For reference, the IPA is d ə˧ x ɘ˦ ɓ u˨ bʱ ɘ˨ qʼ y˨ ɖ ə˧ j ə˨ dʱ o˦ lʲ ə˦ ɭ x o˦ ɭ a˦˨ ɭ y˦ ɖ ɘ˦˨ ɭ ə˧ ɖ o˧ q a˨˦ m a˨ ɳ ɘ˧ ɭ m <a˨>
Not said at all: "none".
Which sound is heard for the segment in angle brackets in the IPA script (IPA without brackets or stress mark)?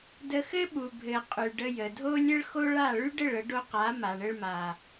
a˨